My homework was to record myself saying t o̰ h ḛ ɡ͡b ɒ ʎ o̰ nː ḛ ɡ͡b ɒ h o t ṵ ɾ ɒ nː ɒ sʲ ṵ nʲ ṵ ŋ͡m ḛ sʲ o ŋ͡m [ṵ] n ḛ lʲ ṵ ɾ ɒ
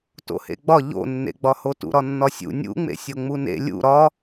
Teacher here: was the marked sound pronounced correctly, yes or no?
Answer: no